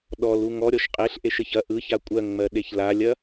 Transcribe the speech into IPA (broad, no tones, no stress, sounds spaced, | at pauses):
ɗ ɔ l u ŋ ɔ ɾʲ ɔ ʃ qʼ e ɬ ʔ e ʃ ə ç ɐ ʔ ɯ ç a kʷʼ ɜ ŋ ŋ͡m ɜ ɗ e ç l a lʲ ɐ